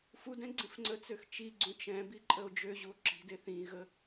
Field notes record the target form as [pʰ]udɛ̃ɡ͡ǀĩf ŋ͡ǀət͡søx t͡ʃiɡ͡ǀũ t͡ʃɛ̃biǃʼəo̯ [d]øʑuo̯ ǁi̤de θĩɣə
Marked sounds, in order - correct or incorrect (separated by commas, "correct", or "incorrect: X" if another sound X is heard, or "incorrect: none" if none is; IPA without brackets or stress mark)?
incorrect: f, incorrect: d͡ʒ